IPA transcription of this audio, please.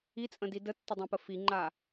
it͡sʼə̃di dətːədˤõpə fiŋ͡ǃa

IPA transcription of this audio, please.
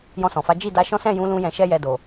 jɔ̃˧sɔ̃˨fa˨˦ d͡ʒi˦˨da˧ʃɔ̃˦ sɛ̃˦˨jũ˨˦ lũ˦jɛ̃˧ʃɛ˦jɛ˧ do˨

